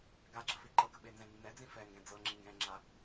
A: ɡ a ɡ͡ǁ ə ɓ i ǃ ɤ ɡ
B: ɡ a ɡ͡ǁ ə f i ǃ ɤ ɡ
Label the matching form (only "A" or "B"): B